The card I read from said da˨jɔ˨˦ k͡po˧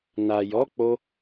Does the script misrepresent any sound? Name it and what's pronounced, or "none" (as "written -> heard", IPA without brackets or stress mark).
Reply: d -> n